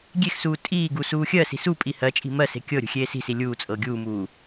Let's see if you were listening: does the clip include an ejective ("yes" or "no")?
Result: yes